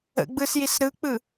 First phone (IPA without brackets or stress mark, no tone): ə̰